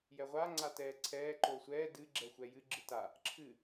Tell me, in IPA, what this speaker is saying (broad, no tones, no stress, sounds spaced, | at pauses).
j ɛ ʁʷ a ŋ͡ǀ a t ɛː ǀʰ ɛː ǃ oː sʷ ɛː d ɨ ɡ͡ǁ ɛ xʷ ɛ j ɨ ɡ͡ǁ ɨ t a | ǁʰ ɨ